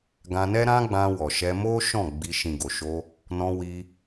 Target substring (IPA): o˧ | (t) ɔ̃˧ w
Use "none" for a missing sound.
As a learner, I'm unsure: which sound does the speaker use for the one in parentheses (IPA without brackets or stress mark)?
n